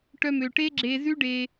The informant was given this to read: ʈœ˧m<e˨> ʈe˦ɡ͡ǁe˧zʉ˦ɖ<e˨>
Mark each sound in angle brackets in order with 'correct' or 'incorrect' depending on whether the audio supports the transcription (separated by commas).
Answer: incorrect, incorrect